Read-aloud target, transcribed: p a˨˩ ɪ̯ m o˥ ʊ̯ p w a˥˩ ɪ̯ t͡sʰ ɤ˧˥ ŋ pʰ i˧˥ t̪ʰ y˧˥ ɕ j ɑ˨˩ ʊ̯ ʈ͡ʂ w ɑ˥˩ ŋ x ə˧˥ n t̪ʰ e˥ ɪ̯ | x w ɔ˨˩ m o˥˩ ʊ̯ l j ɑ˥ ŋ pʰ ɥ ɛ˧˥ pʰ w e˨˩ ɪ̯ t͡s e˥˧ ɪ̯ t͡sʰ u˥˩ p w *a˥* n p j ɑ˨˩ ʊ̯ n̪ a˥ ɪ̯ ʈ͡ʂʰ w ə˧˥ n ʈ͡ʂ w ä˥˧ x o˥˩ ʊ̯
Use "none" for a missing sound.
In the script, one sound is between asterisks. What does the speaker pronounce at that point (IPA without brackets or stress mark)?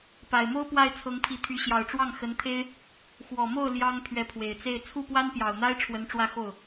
a˥